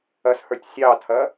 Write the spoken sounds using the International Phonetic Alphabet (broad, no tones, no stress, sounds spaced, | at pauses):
ɐ s h ə˞ tʲ sʲ ɑ tʰ ɐ